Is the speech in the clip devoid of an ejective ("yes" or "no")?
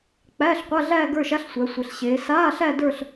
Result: yes